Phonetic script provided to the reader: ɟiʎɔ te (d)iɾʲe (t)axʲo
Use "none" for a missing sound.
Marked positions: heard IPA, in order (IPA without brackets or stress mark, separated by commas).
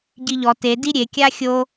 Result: d, kʲ